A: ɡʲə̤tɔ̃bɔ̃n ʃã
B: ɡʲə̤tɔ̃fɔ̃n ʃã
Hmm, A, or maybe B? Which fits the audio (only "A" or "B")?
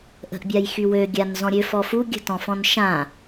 B